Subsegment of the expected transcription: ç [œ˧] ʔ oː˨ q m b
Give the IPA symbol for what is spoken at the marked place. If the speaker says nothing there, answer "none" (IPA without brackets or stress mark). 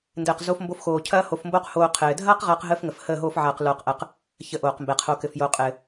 ə˧